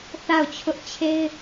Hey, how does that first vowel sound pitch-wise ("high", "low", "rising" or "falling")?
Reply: falling